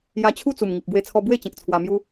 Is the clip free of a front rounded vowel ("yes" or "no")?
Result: yes